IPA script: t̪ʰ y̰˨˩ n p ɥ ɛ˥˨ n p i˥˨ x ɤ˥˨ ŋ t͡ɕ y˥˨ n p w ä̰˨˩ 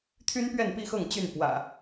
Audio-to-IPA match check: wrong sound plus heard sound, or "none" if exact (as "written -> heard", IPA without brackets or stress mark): y̰˨˩ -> y˦